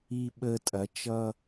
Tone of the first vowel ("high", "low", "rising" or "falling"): high